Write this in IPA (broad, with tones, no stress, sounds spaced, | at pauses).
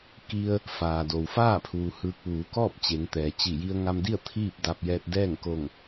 k i˧ ə̯ | f aː˩ d o˩ w f aː˥˨ pʰ uː˩ h ɯː˧ k̚ ʋ uː˩˧ k ɔː˥˨ p̚ t͡ɕ e˩˧ ŋ t̪ ɛː˩ t͡ɕ i˧˩ j i˧ ə̯ ŋ a˧ m d i˥˨ ə̯ t̪ʰ iː˥˨ p̚ d a˧ p̚ j ɛː˧ t̚ d ɛː˥˨ ŋ k o˧˩ ŋ